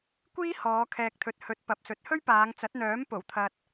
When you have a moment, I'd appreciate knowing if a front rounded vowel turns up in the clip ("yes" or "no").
yes